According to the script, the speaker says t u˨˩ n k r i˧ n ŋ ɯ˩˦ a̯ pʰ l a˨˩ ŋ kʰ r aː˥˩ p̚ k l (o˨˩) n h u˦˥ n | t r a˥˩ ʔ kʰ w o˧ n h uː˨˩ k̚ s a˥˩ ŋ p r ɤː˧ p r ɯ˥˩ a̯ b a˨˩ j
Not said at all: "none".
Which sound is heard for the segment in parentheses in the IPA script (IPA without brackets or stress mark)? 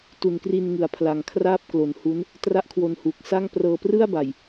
o˨˩